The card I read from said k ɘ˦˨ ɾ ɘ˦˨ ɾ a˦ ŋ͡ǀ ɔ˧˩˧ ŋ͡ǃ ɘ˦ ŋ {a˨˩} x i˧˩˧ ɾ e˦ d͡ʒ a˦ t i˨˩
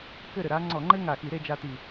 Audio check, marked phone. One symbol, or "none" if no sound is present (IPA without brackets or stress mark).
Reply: a˨˩